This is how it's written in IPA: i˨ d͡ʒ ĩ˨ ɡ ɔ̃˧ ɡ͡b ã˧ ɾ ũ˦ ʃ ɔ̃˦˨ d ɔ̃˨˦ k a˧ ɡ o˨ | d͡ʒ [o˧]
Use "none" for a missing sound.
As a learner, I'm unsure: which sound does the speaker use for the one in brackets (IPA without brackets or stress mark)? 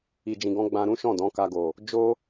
o˦